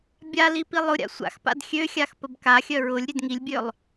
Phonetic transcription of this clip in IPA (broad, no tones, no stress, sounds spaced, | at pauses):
bʲ a l i p i lˠ ʊ ɾʲ a̰ sʷ a̰ x p a̰ d xʲ ø xʲ a x p ə b k a xʲ œ ɹ ʊ lʲ ɾʲ ø d ŋ i lʲ bʲ ø lˠ